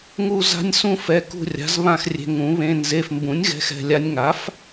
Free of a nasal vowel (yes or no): no